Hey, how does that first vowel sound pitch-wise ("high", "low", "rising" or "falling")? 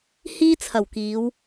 high